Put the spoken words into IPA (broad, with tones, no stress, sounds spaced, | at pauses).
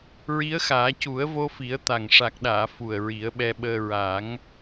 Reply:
ɹ i˧˥ ə̯ x aː˨˩˦ c u˨˩˦ ə̯ v o˧ f i˨˩˦ ə̯ t̪ a˨˩ ŋ ʂ a˨˩ k̚ ɗ aː˨˩˨ f u˨˩ ə̯ ɹ i˨˩˦ ə̯ ɓ ɛ˧ ɓ əː˧ ɹ a˨˩˦ ŋ